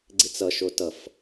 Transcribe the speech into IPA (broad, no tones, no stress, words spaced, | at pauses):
ɡ͡ǀit͡sʌ ʃotʌf